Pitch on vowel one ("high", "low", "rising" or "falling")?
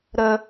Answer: high